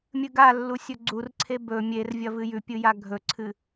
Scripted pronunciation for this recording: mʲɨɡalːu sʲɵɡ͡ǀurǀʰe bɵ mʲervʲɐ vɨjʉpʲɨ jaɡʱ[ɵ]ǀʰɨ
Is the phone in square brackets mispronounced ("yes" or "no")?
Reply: no